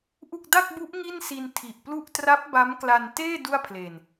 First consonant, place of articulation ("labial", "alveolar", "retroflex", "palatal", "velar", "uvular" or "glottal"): glottal